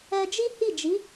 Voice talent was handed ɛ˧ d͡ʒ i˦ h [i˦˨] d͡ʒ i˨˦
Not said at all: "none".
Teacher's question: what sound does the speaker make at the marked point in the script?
i˦˨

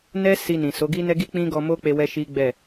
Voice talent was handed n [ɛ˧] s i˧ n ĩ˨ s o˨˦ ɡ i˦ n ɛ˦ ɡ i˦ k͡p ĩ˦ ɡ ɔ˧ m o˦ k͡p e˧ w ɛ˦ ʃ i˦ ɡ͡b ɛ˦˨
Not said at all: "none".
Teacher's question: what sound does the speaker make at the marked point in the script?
ɛ˦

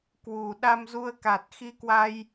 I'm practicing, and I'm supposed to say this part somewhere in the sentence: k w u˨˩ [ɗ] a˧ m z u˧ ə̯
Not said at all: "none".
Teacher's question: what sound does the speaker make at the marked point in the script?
ɗ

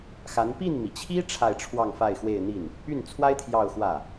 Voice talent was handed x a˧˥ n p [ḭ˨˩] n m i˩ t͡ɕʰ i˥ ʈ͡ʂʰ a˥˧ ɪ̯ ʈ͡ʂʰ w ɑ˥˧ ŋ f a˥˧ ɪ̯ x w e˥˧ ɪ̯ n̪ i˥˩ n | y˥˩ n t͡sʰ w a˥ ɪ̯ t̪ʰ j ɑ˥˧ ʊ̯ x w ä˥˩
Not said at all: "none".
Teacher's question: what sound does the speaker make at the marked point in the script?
i˥˩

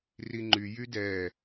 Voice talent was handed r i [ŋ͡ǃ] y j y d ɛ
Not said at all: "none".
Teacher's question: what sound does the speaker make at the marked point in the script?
ŋ͡ǃ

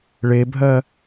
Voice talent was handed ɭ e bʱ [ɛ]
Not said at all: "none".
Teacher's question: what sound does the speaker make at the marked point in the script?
ɜ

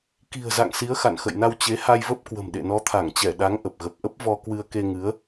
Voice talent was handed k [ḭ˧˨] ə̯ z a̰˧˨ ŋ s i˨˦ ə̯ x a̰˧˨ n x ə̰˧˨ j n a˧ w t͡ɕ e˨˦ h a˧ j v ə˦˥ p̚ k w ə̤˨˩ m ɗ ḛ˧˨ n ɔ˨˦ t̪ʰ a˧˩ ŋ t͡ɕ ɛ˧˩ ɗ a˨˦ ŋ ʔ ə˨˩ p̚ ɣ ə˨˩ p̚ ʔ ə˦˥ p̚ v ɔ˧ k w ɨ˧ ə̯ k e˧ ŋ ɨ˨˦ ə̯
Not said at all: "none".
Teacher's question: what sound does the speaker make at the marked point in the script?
i̤˨˩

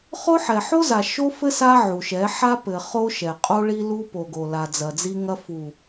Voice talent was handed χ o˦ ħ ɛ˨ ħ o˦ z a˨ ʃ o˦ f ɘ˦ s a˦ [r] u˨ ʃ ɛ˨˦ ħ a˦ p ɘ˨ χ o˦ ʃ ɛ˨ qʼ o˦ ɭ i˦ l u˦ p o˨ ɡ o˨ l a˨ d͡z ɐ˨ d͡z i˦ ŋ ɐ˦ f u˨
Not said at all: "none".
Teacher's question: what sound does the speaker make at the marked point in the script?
ʕ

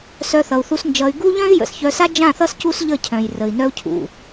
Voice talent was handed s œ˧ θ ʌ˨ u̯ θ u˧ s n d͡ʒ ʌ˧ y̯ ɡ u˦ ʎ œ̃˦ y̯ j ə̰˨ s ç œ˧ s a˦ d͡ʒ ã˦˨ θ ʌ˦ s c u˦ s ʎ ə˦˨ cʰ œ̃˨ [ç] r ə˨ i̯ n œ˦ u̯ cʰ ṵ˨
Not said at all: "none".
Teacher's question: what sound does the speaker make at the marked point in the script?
j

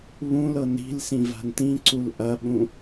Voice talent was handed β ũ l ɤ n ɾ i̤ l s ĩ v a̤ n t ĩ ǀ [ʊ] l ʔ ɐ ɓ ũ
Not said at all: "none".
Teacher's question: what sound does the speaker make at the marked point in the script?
u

